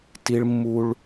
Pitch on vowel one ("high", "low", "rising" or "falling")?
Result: high